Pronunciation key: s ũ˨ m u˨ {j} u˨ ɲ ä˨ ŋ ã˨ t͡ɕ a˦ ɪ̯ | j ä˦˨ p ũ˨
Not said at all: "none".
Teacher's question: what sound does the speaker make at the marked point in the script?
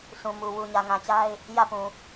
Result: w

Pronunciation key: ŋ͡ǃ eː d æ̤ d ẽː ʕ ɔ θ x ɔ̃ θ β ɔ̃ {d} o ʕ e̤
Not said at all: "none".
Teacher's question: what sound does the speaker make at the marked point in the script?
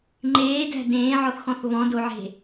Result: d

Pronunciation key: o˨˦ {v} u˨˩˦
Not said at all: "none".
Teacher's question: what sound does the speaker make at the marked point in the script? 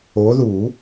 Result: ð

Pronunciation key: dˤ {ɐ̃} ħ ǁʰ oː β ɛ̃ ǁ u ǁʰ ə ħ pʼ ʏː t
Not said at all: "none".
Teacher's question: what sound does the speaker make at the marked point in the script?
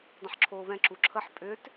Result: ə̃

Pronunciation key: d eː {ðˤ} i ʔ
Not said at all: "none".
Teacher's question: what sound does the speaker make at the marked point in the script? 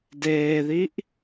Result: ð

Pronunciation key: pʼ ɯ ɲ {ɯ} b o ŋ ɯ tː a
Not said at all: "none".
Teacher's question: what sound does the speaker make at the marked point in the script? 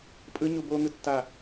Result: u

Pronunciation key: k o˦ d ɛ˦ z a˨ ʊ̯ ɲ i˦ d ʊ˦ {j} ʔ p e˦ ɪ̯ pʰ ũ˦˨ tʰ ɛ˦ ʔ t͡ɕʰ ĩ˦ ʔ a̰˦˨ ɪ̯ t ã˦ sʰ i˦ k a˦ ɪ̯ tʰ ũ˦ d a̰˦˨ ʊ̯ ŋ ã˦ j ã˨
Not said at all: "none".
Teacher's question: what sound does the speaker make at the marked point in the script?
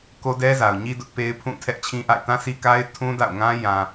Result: none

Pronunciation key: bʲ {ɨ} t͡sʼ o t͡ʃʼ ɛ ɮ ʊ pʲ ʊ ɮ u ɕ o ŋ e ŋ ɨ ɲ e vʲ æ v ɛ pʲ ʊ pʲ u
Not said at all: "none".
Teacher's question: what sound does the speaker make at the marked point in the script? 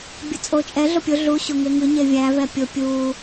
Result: ɨ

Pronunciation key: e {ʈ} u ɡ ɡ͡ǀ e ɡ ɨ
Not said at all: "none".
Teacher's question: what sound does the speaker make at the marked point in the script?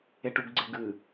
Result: ʈ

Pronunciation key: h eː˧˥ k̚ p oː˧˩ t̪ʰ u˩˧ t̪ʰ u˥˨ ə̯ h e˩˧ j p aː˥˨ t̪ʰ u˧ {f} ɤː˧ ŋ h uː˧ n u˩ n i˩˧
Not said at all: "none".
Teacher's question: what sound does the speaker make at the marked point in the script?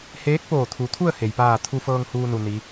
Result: f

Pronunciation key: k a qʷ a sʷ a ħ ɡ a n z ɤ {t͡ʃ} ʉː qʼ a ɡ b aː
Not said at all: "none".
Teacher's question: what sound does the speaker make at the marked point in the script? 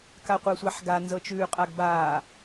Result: t͡ʃ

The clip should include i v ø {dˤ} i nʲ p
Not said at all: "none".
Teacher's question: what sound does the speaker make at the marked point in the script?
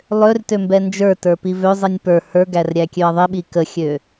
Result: zˤ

